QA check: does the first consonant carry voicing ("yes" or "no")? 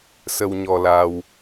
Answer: no